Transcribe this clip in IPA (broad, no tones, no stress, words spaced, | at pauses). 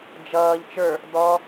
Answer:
d͡ʒʌːʎ t͡ʃə˞ | dɔ